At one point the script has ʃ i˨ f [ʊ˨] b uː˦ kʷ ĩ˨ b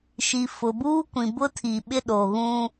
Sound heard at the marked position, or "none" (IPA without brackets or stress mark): ʊ˨